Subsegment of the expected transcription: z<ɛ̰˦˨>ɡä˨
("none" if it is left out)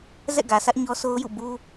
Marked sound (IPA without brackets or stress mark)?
ɛ̰˦˨